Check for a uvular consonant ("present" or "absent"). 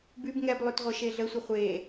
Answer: present